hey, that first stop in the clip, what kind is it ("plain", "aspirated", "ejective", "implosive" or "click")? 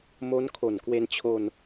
aspirated